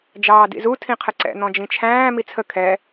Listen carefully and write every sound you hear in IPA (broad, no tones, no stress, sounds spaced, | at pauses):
d͡ʒ ɑː d ḭ z u tʰ ĩ qʰ ə ǀ ɛ̰ n̪ ɔ̃ d͡ʒ ĩ t͡ʃʰ æ̃ː m i t͡sʰ ə kʰ ɛ